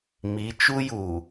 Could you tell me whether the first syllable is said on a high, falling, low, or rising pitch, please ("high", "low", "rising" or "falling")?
rising